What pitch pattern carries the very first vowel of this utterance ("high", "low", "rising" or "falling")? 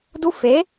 high